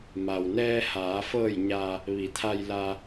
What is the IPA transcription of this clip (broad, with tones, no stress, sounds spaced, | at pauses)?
m a˩ w n ɛː˧ h aː˩˧ f ɤː˧˩ j ɲ a˩ | ʋ i˩˧ t̪ʰ a˧ j l a˧